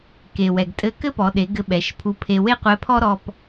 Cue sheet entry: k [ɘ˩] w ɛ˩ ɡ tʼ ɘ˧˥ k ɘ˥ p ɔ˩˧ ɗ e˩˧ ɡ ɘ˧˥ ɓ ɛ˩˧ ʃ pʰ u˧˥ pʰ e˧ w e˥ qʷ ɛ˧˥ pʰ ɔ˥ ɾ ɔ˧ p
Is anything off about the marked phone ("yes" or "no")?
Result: yes